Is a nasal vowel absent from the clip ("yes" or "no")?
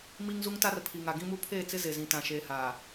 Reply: no